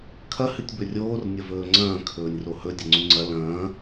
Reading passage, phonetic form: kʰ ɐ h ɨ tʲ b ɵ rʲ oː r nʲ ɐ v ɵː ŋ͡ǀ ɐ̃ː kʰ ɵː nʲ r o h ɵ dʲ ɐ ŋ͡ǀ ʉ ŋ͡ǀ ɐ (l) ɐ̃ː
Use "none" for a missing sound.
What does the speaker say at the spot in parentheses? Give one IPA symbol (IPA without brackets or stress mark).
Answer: l